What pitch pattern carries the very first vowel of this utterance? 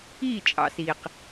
falling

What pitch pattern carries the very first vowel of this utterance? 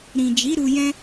low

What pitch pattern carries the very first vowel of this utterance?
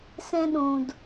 high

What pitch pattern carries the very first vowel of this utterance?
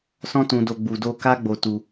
high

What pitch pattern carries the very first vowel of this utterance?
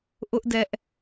high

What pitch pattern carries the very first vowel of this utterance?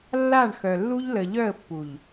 falling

